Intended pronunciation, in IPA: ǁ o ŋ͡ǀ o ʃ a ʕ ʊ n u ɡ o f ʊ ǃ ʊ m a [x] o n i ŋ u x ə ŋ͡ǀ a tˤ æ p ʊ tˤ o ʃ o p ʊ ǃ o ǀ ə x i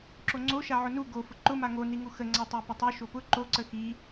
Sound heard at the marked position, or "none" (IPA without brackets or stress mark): ŋ